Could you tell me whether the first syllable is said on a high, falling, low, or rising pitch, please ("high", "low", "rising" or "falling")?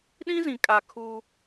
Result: high